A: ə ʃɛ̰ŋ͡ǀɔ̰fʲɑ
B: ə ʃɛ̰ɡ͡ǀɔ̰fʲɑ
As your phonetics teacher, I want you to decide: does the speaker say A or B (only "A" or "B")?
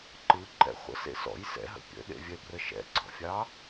B